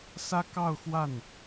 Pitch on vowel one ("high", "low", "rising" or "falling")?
high